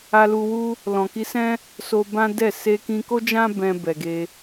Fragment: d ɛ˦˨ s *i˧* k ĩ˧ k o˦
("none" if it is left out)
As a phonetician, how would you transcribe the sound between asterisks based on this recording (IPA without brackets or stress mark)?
e˧